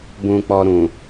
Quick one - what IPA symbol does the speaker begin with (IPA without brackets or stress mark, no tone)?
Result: b